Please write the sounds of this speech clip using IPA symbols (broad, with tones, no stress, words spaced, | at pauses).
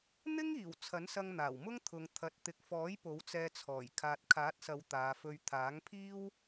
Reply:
n̪ɪ˥ŋiː˨˩w t͡sʰɐ˨˥nsɐ˧ŋn̪aː˨˩wmʊ˥ŋ t̪ʰʊ˨˧ŋt̪ʰɐ˨˥t̚ t̪ɪ˨k̚fɔː˨˥j po˨˥wt͡sɛː˧t͡sʰɔː˨˩j kʰaː˨t̚kʰaː˨˥t̚sɐ˨˧w t̪aː˨˧fɵ˧ɥ t̪ʰaː˨˥ŋpʰiː˥w